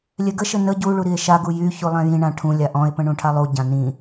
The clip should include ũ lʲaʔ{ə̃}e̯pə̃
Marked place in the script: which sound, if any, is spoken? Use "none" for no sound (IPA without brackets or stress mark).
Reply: ɔ̃